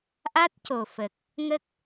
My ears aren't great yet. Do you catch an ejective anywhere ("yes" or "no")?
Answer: no